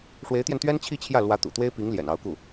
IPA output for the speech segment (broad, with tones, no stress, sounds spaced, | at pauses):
ʂ w e˧˥ ɪ̯ t̪ j ɛ˧ n t̪ ɥ ɛ˥ n t͡ɕʰ i˥˧ t͡ɕʰ j ä˥˩ l w ä˧˥ t̪ ṵ˨˩ t̪ w e˥ ɪ̯ p i˧˥ ŋ l j ɛ̰˨˩ n ɑ˧˥ ʊ̯ k u˥˩